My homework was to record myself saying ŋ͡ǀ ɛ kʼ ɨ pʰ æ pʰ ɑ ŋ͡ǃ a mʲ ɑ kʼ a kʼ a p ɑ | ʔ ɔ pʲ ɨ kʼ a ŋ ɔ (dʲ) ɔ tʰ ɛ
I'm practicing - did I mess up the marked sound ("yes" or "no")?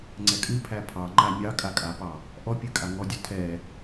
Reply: no